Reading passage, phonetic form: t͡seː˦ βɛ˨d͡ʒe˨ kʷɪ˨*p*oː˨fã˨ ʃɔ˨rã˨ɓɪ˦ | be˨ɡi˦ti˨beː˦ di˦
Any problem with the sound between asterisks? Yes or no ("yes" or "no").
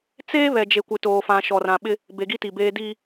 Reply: yes